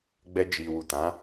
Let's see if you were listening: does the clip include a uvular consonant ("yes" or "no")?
no